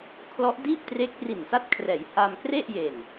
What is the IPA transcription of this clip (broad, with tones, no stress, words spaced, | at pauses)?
kʰlɔ˦˥ʔdiː˥˩p̚tre˦˥k̚ ri˨˩nsa˦˥t̚kʰrɛː˩˦jhaː˧m kre˥˩ʔje˨˩n